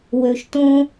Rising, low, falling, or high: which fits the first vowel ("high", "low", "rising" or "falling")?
low